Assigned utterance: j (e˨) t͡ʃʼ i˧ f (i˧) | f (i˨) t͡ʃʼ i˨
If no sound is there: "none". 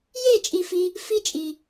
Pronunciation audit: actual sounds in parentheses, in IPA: e˦˨, i˧, i˦

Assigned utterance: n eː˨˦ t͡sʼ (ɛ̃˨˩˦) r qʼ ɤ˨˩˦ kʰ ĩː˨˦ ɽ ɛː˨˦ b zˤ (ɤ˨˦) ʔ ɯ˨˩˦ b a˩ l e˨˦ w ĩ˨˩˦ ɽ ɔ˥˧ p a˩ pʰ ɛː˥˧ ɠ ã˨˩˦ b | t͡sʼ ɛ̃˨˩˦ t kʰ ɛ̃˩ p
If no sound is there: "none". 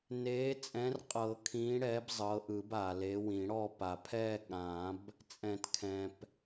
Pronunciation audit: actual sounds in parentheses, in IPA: ɛ̃˨˦, ɤ˨˦

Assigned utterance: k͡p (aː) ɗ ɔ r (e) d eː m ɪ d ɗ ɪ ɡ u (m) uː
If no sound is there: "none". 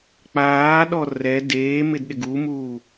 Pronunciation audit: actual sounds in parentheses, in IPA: aː, ɛ, m

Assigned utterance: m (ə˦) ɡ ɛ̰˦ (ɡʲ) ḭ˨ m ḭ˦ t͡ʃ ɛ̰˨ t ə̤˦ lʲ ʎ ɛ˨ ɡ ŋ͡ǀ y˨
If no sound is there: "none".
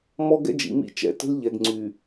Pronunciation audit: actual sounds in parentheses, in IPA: ɔ˦, d͡ʒ

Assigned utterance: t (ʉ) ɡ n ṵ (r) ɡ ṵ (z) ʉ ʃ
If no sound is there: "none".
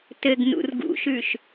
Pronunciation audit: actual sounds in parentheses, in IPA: ɘ, r, ʃ

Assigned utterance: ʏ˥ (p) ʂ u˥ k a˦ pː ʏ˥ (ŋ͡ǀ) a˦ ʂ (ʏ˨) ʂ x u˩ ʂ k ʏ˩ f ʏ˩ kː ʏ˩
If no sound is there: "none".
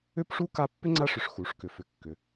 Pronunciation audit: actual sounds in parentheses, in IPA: p, ŋ͡ǀ, ʏ˨

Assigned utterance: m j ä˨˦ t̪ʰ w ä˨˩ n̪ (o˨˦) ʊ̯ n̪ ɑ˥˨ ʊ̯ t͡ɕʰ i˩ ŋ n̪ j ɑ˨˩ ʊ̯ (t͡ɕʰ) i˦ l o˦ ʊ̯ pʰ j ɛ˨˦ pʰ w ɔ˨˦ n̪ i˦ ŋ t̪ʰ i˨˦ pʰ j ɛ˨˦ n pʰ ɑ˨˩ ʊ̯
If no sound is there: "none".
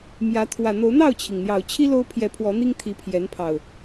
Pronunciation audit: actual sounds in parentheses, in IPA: o˨˦, t͡ɕʰ

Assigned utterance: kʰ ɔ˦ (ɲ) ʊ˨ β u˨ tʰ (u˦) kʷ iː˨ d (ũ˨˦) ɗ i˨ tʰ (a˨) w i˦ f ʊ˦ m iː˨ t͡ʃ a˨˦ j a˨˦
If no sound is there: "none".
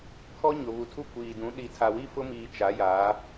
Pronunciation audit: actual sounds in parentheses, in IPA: ɲ, u˦, ũ˨˦, a˨

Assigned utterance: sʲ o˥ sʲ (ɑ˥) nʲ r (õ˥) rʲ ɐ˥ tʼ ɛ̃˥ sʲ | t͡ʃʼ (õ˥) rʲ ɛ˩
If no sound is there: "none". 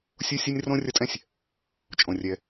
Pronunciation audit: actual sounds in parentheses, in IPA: ɐ˥, õ˥, õ˩

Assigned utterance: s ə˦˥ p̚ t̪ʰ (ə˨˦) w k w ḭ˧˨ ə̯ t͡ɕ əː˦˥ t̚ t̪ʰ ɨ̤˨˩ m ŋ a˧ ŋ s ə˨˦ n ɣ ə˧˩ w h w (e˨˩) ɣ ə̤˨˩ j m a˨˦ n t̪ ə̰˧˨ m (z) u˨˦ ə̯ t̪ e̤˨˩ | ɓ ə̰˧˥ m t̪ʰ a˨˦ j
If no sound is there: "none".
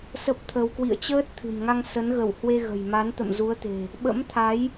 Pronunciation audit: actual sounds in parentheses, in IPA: ə˧, e˧, z

